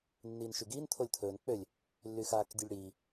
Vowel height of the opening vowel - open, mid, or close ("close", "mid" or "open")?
close